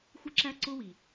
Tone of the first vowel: high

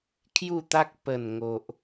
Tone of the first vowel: falling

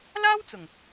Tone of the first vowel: high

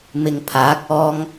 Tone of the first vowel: low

